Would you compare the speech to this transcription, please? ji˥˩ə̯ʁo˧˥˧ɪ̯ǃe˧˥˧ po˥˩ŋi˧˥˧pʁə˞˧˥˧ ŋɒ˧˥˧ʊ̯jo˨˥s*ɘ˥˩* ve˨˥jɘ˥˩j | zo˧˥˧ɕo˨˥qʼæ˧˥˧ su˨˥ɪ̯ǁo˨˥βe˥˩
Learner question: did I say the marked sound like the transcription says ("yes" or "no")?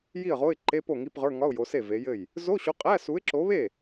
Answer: no